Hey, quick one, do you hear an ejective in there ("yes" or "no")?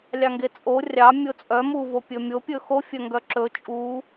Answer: yes